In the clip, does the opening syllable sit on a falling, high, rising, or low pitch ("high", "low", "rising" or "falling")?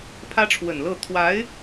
high